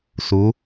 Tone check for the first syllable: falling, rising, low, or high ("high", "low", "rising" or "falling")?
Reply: rising